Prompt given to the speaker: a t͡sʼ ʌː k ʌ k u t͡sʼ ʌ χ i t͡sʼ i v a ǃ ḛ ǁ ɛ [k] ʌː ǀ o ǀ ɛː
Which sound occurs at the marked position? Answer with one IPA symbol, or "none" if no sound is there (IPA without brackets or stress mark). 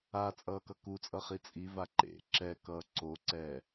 k